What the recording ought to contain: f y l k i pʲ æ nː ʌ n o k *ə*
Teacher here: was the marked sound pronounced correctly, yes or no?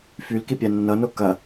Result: no